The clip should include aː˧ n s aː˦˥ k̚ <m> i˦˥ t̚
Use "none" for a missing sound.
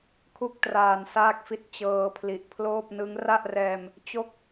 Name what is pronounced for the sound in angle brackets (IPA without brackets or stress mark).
f